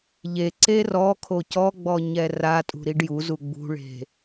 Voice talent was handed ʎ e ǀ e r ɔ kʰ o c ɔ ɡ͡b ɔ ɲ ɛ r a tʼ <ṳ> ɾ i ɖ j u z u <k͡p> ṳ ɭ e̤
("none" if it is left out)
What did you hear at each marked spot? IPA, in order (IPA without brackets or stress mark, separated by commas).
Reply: ṳ, ɡ͡b